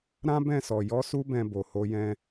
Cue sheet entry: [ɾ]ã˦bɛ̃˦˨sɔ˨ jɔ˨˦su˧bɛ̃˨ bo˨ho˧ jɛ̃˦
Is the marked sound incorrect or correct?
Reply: correct